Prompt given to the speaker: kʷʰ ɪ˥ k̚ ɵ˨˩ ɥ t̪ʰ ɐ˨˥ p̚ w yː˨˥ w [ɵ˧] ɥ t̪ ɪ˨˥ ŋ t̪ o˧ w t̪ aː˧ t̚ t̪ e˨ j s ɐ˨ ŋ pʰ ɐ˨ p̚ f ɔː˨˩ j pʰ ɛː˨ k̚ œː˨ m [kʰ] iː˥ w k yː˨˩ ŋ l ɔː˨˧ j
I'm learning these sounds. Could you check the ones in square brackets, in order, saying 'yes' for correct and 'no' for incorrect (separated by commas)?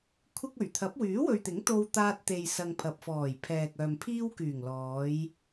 no, no